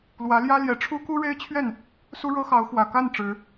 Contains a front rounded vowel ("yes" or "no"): no